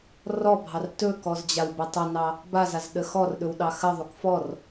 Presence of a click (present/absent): absent